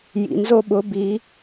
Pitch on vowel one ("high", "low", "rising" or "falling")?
low